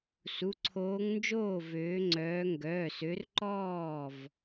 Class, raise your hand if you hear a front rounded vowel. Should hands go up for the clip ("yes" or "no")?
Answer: yes